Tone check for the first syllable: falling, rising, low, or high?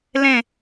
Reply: falling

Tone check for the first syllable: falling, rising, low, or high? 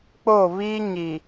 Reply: falling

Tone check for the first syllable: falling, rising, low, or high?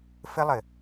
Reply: high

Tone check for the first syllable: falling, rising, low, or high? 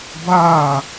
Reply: falling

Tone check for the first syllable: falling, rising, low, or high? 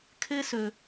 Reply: high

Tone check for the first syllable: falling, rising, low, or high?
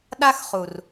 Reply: high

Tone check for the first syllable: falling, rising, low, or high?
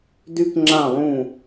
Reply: high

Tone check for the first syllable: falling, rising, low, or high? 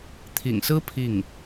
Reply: low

